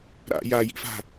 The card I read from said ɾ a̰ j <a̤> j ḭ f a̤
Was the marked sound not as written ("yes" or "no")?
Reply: yes